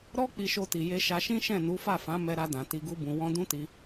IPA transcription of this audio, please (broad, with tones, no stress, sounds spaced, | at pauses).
ɾ ɔ˦ k͡p i˧ ʃ o˧ t i˨ j e˧ ʃ a˧ ʃ ĩ˦ ʃ ɛ̃˦˨ n u˨˦ f a˦˨ f ã˨˦ m ɛ˧ ɾ a˧ d ã˨ t i˧ ɡ u˦ b ũ˧ w ɔ̃˦ d ũ˦ t i˧